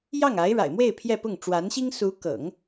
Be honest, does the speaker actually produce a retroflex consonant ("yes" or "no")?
yes